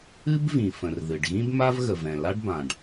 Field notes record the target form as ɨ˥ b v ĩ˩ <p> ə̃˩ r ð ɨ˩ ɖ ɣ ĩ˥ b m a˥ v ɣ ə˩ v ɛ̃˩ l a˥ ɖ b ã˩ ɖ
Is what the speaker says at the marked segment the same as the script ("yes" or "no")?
no